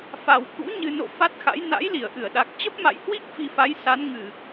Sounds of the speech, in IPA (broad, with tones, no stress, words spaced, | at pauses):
fa˨˩wkṵ˧˥ ɲɨ˨˩no̰˧˨ fa˦˥t̚xa̰˧˥j na̰˧˥jli˧˩ə̯ʔɨ˧˩ə̯ɗa˨˩k̚ t͡ɕə˦˥p̚ma̰˧˨jhwi˦˥k̚ fi˧fa˨˦j sa˨˦nŋɨ˧˩˨